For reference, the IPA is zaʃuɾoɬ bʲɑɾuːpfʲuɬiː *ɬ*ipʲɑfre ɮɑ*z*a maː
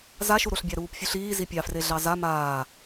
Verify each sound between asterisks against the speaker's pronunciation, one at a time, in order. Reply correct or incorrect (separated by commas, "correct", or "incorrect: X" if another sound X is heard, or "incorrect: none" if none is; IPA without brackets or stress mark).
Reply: incorrect: z, correct